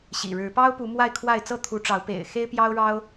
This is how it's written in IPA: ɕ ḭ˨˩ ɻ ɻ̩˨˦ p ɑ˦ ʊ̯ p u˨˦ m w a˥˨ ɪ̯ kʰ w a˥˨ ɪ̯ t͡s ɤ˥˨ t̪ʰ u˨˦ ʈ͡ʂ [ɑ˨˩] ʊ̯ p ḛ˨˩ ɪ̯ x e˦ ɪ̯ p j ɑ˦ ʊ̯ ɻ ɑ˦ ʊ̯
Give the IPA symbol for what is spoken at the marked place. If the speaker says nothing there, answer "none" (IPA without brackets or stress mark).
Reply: ɑ˨˦